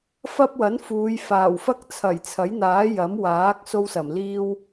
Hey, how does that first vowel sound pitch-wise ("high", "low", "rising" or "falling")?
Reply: high